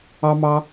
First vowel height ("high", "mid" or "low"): low